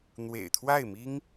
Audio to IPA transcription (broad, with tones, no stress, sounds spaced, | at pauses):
n̪ w ḛ˨˩ ɪ̯ t̪ʰ w a˥˩ ɪ̯ m i˥ ŋ